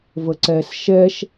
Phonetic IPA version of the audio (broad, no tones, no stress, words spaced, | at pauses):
vəǀɛs ʃɛʃ